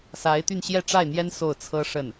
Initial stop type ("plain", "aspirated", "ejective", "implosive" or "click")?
plain